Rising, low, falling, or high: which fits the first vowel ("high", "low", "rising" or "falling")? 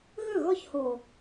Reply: falling